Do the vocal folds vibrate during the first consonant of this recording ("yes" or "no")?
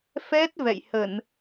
no